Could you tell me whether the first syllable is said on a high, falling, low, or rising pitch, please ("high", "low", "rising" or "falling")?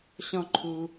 high